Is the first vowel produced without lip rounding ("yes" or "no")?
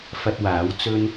yes